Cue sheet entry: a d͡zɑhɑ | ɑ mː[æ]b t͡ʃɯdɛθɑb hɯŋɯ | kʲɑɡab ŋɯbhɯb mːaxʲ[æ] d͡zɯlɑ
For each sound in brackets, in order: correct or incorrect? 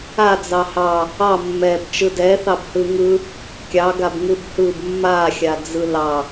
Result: incorrect: ɛ, incorrect: a

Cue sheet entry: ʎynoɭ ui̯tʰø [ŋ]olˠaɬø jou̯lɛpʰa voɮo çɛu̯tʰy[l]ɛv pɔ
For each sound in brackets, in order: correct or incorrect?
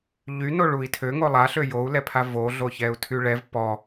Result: correct, incorrect: ɭ

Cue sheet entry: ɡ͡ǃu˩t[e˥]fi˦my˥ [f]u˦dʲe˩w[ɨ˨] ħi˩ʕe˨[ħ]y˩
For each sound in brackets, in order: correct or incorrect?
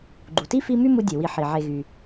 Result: incorrect: i˥, incorrect: m, incorrect: i˨, incorrect: ɣ

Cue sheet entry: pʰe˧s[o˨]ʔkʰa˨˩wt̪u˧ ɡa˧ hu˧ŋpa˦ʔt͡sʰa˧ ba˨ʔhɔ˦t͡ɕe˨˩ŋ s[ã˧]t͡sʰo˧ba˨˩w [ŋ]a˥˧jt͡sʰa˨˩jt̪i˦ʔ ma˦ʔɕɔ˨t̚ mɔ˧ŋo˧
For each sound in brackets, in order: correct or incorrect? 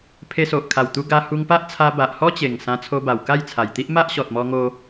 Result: correct, correct, incorrect: k

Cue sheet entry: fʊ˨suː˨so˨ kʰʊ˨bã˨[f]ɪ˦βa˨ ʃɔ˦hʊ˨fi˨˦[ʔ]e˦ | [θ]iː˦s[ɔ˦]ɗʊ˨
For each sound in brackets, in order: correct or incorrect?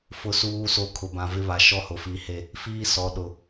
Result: incorrect: v, incorrect: h, incorrect: f, incorrect: ɔ˨

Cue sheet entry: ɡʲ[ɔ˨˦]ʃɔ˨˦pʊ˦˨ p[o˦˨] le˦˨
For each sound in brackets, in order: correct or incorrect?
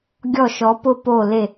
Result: incorrect: ɔ˦˨, correct

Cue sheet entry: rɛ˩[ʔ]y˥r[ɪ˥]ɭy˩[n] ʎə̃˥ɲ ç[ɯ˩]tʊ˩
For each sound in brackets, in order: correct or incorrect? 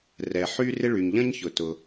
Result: incorrect: ħ, correct, incorrect: ɲ, incorrect: ʊ˩

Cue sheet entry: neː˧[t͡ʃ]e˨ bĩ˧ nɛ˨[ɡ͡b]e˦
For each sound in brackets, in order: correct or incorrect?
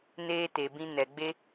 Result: incorrect: t, correct

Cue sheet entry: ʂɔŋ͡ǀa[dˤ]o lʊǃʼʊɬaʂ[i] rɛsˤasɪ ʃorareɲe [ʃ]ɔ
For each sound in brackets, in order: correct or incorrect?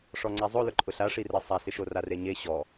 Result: incorrect: zˤ, correct, incorrect: ɕ

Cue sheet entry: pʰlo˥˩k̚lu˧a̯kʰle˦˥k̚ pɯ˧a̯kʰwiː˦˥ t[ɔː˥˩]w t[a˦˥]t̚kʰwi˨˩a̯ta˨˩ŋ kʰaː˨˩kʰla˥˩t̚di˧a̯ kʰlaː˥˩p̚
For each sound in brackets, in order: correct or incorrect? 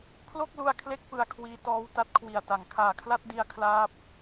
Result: incorrect: ɔː˦˥, correct

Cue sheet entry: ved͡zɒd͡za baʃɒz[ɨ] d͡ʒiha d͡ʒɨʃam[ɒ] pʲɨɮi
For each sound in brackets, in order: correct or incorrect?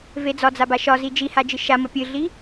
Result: incorrect: i, correct

